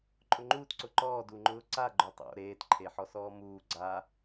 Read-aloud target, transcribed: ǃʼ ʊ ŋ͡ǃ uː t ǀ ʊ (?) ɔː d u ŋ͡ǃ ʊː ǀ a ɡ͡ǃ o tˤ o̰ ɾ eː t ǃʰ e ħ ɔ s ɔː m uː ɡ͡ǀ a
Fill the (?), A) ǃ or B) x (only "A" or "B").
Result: A